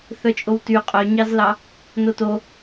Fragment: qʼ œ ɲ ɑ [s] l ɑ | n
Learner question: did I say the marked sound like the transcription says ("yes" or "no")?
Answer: no